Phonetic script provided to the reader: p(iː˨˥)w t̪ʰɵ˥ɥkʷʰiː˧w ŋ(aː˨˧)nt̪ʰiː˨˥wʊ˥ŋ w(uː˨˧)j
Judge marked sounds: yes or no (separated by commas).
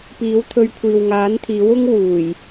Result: yes, no, no